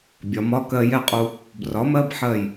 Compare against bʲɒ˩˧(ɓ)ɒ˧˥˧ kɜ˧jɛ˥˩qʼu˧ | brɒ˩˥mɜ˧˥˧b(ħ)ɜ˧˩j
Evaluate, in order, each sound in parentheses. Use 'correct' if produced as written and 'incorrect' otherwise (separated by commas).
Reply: incorrect, correct